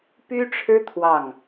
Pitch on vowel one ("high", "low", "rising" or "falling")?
high